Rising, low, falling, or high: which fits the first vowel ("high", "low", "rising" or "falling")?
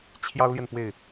high